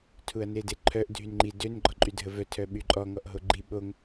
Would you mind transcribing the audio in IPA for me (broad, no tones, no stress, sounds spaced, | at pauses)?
tʰ u ɐ̯ n e d e ǃʰ œ ʔ dʱ y n ŋ͡ǃ i d ø n ɡ͡ǃ ɔ ǃʼ y dʱ ə v œ tʰ œ ɓ y ǃʼ ɔ ŋ ɔ ʔ ɦ o ɡ͡ǃ i ɓ o ŋ